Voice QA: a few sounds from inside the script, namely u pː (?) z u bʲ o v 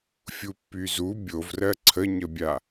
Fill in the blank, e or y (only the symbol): y